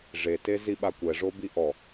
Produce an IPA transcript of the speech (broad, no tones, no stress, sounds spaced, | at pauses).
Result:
ʐ e t e z i ɓ a kʷ ɛ ʐ o b i ʔ ɔ